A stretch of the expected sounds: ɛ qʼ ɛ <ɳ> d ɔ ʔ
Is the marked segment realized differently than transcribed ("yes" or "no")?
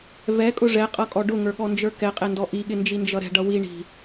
yes